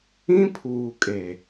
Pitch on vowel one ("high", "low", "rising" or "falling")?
high